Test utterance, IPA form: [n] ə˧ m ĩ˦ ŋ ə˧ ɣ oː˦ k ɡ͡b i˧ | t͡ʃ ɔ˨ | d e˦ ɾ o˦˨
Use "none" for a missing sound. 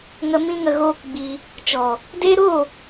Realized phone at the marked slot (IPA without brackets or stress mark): ŋ